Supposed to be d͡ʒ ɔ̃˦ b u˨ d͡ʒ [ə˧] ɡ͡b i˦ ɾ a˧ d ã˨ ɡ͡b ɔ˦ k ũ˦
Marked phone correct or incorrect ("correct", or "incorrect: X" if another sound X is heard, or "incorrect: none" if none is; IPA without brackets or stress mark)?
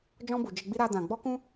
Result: correct